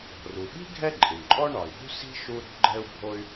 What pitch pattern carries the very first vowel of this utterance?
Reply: low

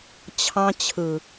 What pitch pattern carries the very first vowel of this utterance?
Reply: high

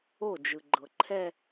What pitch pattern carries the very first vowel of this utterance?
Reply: falling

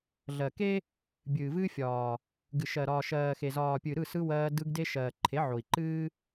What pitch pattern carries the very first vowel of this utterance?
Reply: low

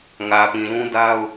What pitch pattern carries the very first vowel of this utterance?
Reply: low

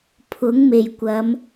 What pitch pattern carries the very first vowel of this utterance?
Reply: rising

